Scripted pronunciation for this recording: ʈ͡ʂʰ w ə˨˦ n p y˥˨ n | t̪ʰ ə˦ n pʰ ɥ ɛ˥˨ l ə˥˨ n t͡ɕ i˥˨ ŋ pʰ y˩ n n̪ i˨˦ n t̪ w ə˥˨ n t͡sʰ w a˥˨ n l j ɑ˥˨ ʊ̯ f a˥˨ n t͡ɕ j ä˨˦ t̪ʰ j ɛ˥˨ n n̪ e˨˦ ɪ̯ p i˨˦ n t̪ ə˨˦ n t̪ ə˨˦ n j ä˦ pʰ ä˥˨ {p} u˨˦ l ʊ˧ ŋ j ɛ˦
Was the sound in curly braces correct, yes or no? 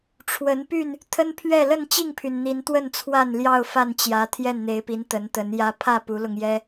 yes